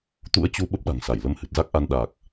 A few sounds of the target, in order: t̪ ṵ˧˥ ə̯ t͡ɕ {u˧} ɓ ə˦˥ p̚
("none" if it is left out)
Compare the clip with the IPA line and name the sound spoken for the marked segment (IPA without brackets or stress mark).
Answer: u˧